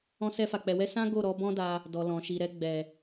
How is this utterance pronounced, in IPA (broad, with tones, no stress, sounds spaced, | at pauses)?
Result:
ɔ̃˧ s ɛ˧ f a˨ k͡p ɛ˨ w ɛ˧ s ã˦ ɡ o˦˨ ɾ ɔ˨˦ b ɔ̃˦ d a˧ | d ɔ˨ l ɔ̃˨ ʃ i˨ ɾ ɛ˧ ɡ͡b ɛ˨